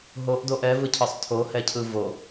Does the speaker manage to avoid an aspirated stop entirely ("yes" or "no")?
no